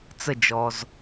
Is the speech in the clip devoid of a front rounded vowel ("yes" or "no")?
yes